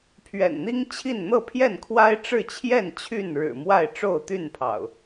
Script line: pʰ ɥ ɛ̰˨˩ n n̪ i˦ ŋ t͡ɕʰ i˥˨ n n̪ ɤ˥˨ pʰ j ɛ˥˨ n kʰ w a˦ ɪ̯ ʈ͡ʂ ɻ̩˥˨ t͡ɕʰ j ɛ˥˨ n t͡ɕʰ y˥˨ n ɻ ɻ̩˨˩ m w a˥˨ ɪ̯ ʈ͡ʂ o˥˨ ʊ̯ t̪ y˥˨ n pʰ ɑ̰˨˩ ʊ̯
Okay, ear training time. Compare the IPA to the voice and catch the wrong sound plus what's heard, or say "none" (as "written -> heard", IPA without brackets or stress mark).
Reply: none